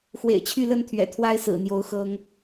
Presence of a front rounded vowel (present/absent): present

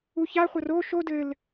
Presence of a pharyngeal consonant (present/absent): absent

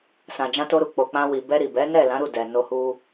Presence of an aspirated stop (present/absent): absent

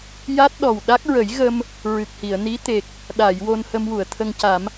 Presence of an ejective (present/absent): absent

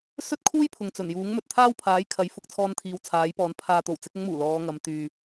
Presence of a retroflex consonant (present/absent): absent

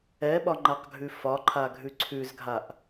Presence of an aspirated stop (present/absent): present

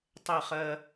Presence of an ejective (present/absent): absent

